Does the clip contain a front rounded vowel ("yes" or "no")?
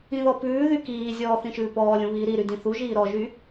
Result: yes